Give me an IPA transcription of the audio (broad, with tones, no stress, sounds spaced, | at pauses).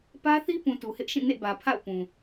p ä˦ θ i˦ p ũ˨ t u˨ h ɪ˦ ʔ ʃ ĩ˦˨ n ḛ˦˨ b ä˨ pʰ a̰˦˨ ʊ̯ p ũ˨